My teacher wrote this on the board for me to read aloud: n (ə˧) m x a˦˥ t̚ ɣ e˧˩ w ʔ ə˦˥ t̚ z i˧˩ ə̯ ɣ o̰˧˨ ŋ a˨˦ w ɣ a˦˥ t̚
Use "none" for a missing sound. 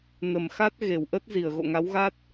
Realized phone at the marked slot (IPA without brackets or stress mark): ə˧˩